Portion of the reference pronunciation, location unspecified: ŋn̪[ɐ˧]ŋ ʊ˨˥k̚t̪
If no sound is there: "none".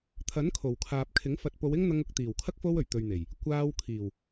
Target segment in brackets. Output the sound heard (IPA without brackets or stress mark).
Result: ɐ˧